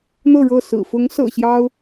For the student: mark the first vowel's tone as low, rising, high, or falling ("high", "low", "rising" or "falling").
falling